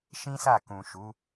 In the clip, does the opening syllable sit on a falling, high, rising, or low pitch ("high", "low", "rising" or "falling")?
high